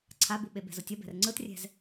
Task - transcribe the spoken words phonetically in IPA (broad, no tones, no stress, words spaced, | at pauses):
ǀʰabuɓe bɛ̤zotʲʌ bɛ̤rŋ͡ǀɯtrʲɛ̤z